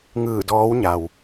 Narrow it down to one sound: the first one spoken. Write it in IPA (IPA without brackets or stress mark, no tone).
ŋ